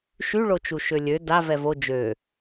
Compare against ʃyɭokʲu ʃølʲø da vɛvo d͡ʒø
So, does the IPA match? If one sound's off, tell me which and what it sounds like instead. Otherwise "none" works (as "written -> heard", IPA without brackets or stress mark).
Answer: kʲ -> t͡ʃ